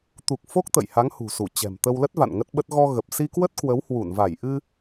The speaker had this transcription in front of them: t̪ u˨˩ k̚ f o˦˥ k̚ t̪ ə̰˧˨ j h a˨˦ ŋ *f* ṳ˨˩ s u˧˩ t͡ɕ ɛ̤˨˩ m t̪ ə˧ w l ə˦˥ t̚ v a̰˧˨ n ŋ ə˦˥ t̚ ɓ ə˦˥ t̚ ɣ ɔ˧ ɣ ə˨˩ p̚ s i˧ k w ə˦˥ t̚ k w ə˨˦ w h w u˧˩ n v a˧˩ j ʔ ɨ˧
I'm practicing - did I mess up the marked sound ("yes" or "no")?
yes